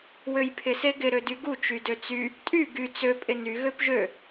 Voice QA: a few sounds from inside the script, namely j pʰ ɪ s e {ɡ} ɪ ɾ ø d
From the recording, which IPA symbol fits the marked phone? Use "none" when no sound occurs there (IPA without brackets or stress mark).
ɡ